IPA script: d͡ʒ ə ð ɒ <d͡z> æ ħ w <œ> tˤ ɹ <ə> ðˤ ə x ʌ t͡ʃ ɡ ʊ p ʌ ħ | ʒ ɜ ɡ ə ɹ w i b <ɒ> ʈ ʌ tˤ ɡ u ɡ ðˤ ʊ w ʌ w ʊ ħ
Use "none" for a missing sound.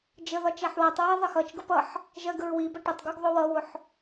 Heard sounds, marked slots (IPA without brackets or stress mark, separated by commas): t͡ʃ, æ, æ, ʌ